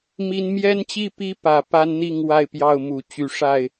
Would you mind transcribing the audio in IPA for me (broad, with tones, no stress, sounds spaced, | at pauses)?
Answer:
m i˦ n m j ɛ˦ n t͡ɕ i˥˨ p i˦ p ä˨˦ p a˦ n n̪ i˥˨ ŋ w a˥˨ ɪ̯ p j ɑ˥˨ ʊ̯ m u˨˦ t͡ɕ y˨˦ ʂ a˥˨ ɪ̯